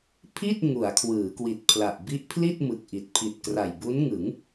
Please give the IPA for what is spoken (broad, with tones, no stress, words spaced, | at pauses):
pʰi˥˩t̚ ŋu˩˦a̯kʰwɯː˩˦kwi˨˩t̚pʰla˨˩ʔ bi˦˥ʔpʰli˥˩t̚ mɯ˨˩k̚ʔi˨˩t̚ pʰi˨˩t̚kra˨˩jbu˦˥nŋɯ˩˦ŋ